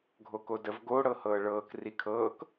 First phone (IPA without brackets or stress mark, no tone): ɡʱ